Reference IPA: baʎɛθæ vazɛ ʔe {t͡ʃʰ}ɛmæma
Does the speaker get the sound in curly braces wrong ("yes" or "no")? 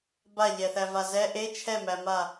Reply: no